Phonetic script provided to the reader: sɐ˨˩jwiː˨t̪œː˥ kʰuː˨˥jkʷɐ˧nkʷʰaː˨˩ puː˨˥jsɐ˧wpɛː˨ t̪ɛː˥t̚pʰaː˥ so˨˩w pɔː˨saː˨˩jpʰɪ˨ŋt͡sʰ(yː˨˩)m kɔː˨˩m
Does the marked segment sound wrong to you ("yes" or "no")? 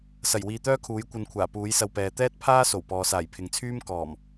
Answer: yes